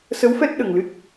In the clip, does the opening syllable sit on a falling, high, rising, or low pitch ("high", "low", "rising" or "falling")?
rising